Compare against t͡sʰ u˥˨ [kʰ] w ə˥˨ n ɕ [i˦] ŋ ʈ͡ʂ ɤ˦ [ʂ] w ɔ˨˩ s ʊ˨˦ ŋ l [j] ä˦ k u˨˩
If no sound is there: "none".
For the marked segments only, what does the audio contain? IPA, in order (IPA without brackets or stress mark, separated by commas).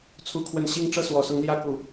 kʰ, i˦, s, j